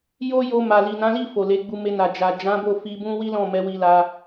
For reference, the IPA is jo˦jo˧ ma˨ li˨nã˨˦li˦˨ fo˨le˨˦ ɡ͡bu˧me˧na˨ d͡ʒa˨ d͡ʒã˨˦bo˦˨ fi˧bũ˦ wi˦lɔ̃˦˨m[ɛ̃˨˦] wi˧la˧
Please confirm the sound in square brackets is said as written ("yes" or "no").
no